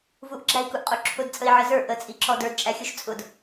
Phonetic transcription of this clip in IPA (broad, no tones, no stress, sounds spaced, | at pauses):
v u ʔ ɡ͡ǁ æ i̯ k u ʔ qʼ u ǁʰ ʊ d t͡sʼ ə i̯ ʕ ə z ə˞ ʔ ə t͡sʼ i ǁ ɔ d ə˞ d t͡ʃʼ æ xʲ u ʃ t͡sʼ ʊ d